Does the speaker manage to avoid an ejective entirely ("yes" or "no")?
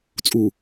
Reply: no